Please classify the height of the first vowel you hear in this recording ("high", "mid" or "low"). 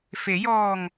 mid